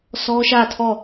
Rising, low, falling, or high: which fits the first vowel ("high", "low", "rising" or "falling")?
high